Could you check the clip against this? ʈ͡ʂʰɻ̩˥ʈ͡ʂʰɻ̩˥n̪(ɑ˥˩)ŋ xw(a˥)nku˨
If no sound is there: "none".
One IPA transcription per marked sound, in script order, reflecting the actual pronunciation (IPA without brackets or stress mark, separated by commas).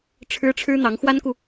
ɑ˧˥, a˥